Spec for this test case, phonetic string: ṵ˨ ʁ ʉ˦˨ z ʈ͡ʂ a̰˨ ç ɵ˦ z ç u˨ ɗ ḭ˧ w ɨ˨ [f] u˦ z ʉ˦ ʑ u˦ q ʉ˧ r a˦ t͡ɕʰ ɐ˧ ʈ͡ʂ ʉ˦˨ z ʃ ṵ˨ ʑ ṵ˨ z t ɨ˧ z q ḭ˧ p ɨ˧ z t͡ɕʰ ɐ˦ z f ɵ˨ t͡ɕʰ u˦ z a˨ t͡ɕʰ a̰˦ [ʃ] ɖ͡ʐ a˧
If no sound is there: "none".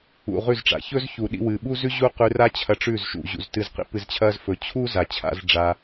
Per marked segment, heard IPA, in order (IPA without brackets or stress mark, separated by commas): ɓ, z